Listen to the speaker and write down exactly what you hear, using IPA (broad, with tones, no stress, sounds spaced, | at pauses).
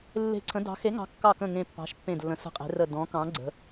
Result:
lː e̤˧˩ ǀʰ ə̃˨˦ d ɑ̤˨˦ x e˨˦ ŋ ɑ̤˨˦ kː ɑ˧˩ k ə̃˧˩ ŋ ẽ˧˩ pː ɑ̤˨˦ ʃ pː ẽ˧˩ d lː ə̃˨˦ s ə̤˧˩ qʼ e̤˨˦ r ə˧˩ d ɔ̃˨˦ k ɑ̃˨˦ ɡ͡ǀ ə̤˨˦